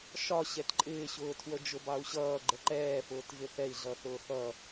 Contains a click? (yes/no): yes